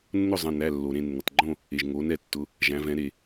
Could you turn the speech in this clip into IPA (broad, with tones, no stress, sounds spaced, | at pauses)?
nː ʊ˥˨ zˤ ə̃˩˧˩ n æ˩˧˩ lː o˩ ɾ ẽ˥˨ nː ə˩ tˤ ɡ͡ǃ õ˥˨ | e˩ ʒ ŋ o˩˧ n ɛ˩ tː ʊ˩˧˩ | ʒ æ̃˩˧ v ɛ̃˩˧ ɾ e˩